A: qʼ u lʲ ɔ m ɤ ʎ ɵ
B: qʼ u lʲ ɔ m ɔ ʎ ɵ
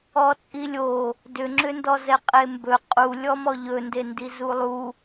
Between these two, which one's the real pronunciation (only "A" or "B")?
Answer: B